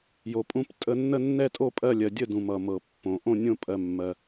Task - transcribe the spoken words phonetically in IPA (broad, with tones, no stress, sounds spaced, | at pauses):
j o˧ pʼ ũ˥˧ p tʼ ə˥˧ nː ə˥˧ nː ɛ˥˧ tʼ o˥˧ pʼ ɜ˥˧ lʲ ɜ˧ dʲ ə˥˧ d ũ˧ m ʌ˧ m ɤ˧ pː õ˧ ʔ õ˥˧ nʲ õ˥˧ pʼ ɜ˧ mː ɜ˧